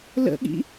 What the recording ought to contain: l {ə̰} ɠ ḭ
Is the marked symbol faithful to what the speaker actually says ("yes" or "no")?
yes